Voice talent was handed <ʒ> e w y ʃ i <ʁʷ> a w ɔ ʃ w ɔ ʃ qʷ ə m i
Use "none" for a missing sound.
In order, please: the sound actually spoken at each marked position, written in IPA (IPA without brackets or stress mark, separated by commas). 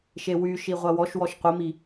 ʃ, ʁʷ